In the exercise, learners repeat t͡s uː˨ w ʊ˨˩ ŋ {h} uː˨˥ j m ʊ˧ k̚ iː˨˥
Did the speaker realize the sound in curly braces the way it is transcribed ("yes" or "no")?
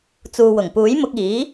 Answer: no